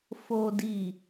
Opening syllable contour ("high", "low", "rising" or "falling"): low